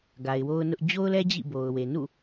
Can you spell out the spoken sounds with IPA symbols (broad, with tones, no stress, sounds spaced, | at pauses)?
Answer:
ɡ a˨ ɪ̯ w o˦ ʊ̯ n ʊ˦ ʔ d͡ʑ o˦ ʊ̯ l ɛ˦ d͡ʑ ḭ˦˨ b o˨ ʊ̯ w e˨ n ṵ˦˨